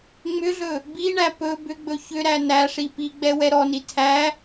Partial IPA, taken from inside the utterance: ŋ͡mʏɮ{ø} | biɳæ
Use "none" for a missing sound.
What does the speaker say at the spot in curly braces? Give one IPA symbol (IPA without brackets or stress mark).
ɵ